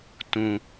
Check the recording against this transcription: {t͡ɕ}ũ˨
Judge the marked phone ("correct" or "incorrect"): incorrect